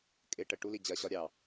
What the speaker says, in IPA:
kʼ ɪ ʈ ə ʈ u l i d͡ʑ ɜ ɕ ɒ ɾʲ ɑ

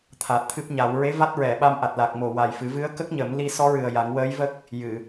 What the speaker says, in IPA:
t̪ʰ aː˨˩ t̚ t̪ʰ ɨ˦˥ p̚ ɲ a˨˩˦ w ɹ e˧˥ v a˦˥ t̚ ɹ ɛ˨˩˨ ɓ a˧ m ʔ a˨˩ t̚ l a˨˩ k̚ m o˨˩ w a˨˩ j f ɨ˨˩˦ v ɨ˧˥ ə̯ k ə˦˥ k̚ ɲ ə˨˩˦ m l i˧ s ɔ˧˥ ɹ ɨ˨˩ ə̯ j a˨˩˦ ŋ w əː˧˥ j v ə˦˥ k̚ | j ɨ˨˩˨

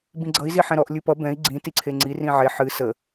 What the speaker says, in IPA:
b ĩ ɡ͡ǀ ʌ i̯ z i ħ ɛ̃ ɾ ɔ ʔ lʲ ɨ p ʌ b ɛ̃ i̯ ɡ͡ǀ ĩ t i ǀʰ e ŋ͡ǀ i r ĩ ʕ e ħ ɨ s ə

